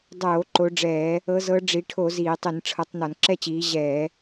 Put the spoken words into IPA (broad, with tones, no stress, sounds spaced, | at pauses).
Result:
dˤ oː˧˩˧ ǃ o˨˦ ɖ͡ʐ ɛː˧˩˧ | ɤ˨˦ z ɤ˨˦ ɖ͡ʐ i˨˦ ʈʰ o˧˩˧ z iː˧˩˧ tˤ i˧˩˧ n ʈ͡ʂʰ ɤ˨˦ tˤ n ɔ˧˩˧ n ǁ ɛ˥˨ t͡ɕ iː˨˦ ʑ ɛː˧˩˧